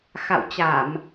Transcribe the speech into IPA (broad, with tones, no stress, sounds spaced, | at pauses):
x a̰˧˨ w t͡ɕ a˧˩˨ m